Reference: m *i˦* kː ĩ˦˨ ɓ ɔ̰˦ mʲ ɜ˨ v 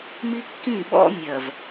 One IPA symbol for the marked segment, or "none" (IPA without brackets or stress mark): i˦